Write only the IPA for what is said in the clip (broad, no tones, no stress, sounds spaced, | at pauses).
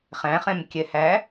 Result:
χ æ̃ χ ɛ̃ m kʲ ɛ h æ